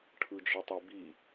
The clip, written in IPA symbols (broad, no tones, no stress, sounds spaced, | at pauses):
ʈʰ ɯ d͡ʒ i tˤ e b i